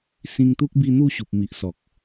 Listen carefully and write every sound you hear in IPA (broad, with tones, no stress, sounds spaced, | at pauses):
s ĩ˧ ŋ t̪ u˦ k̚ b i˧ n̪ u˥˧ ɕ u˨ p̚ m i˨ ʔ s ɔ˨ k̚